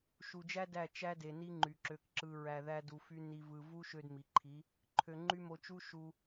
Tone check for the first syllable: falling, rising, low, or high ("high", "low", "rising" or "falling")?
low